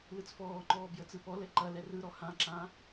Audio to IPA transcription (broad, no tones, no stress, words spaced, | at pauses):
lɯt͡sfɔːŋ͡ǃɔː bjət͡sɯpɔlɛ ǃɐ lɛrɯɾɔ hãǁã